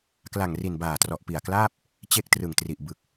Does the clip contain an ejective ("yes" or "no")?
no